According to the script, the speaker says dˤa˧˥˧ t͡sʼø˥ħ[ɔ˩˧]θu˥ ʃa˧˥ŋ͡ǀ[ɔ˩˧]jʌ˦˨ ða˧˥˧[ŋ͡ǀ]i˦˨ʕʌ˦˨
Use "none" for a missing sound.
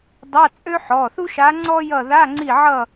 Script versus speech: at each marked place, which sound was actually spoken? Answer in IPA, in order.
ɔ˩˧˩, ɔ˥, ŋ͡ǀ

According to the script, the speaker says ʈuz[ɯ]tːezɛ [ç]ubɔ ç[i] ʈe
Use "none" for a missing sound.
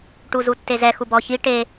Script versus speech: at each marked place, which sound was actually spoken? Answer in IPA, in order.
u, x, i

